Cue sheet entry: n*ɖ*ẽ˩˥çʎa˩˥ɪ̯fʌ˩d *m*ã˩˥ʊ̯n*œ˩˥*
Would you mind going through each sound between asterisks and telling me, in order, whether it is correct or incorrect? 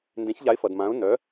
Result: incorrect, correct, correct

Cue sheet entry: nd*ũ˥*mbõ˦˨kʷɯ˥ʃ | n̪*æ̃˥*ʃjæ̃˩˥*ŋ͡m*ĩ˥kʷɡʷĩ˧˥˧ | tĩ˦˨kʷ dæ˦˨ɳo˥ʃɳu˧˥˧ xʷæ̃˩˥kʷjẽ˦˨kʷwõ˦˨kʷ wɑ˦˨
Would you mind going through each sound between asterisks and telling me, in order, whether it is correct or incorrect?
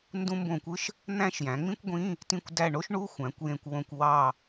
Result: correct, correct, correct

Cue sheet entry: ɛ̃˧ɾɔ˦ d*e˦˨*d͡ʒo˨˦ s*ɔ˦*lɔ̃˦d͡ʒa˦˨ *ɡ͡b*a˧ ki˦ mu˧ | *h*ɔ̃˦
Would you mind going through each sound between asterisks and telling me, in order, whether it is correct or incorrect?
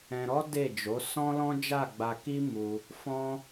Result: correct, incorrect, correct, incorrect

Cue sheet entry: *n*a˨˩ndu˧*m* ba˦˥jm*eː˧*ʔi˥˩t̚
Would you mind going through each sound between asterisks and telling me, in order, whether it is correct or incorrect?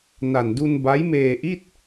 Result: correct, incorrect, correct

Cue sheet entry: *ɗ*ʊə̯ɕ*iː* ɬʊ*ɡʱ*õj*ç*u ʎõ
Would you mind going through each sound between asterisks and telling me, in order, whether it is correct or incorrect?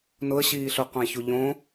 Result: incorrect, correct, incorrect, correct

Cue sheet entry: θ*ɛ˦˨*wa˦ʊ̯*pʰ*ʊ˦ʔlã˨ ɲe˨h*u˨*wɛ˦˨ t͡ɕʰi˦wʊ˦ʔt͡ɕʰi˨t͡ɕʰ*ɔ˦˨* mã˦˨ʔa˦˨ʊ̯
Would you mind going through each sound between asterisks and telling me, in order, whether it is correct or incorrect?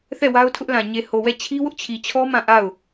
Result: correct, incorrect, incorrect, incorrect

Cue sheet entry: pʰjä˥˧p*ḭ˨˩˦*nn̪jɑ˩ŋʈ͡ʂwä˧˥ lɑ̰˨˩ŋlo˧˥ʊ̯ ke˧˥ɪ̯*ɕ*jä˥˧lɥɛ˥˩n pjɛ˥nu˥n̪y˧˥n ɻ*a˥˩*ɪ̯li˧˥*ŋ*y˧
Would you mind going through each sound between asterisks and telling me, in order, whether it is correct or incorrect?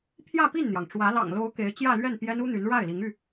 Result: incorrect, incorrect, correct, correct

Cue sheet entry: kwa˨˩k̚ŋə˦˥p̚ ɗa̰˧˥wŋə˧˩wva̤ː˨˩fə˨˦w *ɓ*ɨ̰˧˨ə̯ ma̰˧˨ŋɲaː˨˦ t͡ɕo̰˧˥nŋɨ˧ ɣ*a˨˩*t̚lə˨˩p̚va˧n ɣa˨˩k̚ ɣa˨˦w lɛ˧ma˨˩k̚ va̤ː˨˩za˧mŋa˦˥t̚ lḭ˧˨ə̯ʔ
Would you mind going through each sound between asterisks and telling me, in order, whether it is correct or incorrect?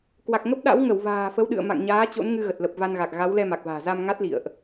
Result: incorrect, incorrect

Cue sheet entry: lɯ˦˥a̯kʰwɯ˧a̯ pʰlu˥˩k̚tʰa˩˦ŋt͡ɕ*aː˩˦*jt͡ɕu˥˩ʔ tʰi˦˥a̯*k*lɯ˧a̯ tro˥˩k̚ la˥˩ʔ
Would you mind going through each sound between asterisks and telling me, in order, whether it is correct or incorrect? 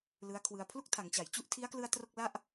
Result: incorrect, correct

